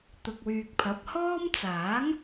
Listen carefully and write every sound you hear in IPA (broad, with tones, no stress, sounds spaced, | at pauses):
t̪ ʊ˨ k̚ w yː˨ k̚ pʰ ɐ˨˥ p̚ h ɔː˥ m t͡s aː˨˥ ŋ